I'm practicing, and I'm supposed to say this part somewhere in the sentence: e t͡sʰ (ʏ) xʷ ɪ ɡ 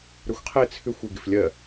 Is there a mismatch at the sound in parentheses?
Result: no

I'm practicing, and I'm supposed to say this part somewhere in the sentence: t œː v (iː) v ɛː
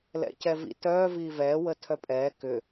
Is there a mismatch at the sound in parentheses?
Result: no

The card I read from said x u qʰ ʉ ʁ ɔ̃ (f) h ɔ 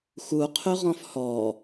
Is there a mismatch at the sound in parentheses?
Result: no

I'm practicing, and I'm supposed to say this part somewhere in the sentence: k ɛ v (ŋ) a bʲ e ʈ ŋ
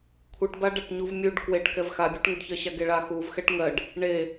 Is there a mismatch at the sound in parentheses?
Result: yes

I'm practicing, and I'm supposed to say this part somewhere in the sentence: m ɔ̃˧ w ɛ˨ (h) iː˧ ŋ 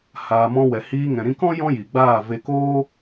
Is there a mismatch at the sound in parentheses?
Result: no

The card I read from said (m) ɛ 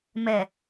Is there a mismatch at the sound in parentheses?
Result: no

